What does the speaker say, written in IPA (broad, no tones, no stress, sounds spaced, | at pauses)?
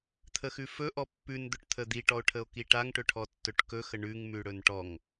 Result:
t̪ʰ ə x ʉ f ɵ ʔ ɔ pː ʉ n d̪ ɵ ʈ t̪ʰ ə d̪ i ʈ ɔ o̯ ʈʰ ə o̯ k i ʈ a ŋ ʈ ɵ ʈʰ ɔ tː ɵ ʈ k ɵ x ə ɳ ʉ ŋ m ʉ ɽ ɵ n ʈ ɔ ŋ